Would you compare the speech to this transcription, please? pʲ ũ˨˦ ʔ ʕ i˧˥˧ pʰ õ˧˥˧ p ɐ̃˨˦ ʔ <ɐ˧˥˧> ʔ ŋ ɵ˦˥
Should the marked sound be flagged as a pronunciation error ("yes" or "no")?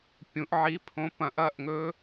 no